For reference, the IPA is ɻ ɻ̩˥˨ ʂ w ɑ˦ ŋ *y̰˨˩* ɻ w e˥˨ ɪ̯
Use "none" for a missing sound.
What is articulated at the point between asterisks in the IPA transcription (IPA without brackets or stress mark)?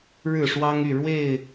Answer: y˥˨